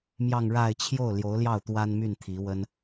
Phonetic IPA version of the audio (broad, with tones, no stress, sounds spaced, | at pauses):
m j ɑ˥˧ ŋ ɻ a˥˧ ɪ̯ t͡ɕʰ j o˥˩ ʊ̯ l j o˧˥ ʊ̯ l j ɑ˥˩ ʊ̯ t̪ w a˥ n m y˥˩ n t̪ʰ i˧˥ w ə˥ n